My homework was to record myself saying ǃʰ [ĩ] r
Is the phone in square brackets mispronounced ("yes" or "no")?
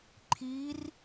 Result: yes